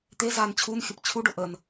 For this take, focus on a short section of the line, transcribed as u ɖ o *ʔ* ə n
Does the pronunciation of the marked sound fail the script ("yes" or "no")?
no